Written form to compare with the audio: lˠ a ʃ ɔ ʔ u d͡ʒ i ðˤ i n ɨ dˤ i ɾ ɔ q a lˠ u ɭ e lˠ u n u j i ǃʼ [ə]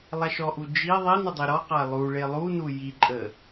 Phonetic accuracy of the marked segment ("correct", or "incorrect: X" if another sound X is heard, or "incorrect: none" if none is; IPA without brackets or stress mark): correct